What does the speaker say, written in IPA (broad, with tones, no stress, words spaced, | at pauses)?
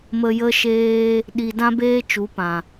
mə˧jə˦ʃeː˦ | ɗi˨ dã˦beː˦t͡ʃu˨˦ pã˨